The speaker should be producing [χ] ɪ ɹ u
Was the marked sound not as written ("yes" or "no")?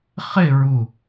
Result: no